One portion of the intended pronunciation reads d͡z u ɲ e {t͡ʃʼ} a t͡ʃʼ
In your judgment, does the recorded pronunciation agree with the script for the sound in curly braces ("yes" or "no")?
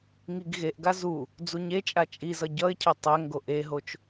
yes